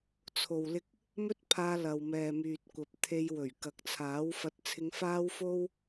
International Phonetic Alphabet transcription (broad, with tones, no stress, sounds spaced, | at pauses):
t͡sʰ o˨ w l ɪ˧ k̚ | m ɵ˥ t̚ pʰ aː˧ l ɐ˨ w m ɛː˨ m yː˨ t̚ kʷ ɐ˨ p̚ t̪ʰ e˧ j w ɵ˨˩ ɥ k ɐ˨ k̚ t͡sʰ aː˨˥ w f ɐ˧ t̚ t͡sʰ ɪ˧ ŋ f aː˥ w f o˥ w